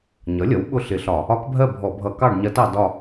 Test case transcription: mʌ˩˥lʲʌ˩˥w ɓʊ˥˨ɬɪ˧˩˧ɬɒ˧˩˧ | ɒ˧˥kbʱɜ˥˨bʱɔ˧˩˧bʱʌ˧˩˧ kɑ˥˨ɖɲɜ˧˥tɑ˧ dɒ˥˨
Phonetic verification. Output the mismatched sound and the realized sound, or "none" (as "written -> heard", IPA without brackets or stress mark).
m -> ɲ